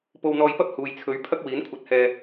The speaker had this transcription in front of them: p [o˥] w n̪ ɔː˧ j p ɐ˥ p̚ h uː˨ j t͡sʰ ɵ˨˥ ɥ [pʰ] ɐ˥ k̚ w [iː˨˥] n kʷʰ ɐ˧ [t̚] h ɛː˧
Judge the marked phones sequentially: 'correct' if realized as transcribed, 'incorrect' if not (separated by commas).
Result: incorrect, correct, correct, correct